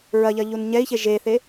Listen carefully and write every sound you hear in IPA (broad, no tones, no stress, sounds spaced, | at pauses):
ɹ ɐ ʎ ɐ ʎ u n ɲ ɛ i̯ ç e ʒ e θ e